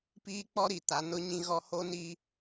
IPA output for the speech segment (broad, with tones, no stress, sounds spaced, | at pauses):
p iː˦ k͡p ɔ˦ ɾ i˨ t a˨˦ n ʊ˦ ɲ ĩ˦ ɣ ɔ˦ h o˦ n i˦